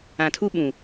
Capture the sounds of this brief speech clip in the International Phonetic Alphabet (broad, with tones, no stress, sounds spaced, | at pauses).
ã˨ tʰ u˦ ɓ ũ˨